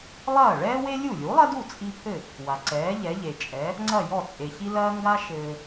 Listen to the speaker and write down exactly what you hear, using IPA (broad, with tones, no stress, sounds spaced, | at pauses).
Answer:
lˠ ɐː˥˩ ɭ ɛː˥ w e˥ lʲ u˥˩ lʲ u˩˥ lˠ ɐ˥ d u˥˩ t͡sʼ i˧ pʰ ɘ˥˩ | w a˩ ǀ ɛː˩˥ ʎ ɛ˩˥ ʎ e˩ t͡ʃʼ ɛ˩˥ | ŋ͡ǀ ɐ˥˩ j ɔ˥˩ t͡sʼ e˩ ç i˥ l ɐː˥ ŋ ɡ a˥ ʃ ɘː˧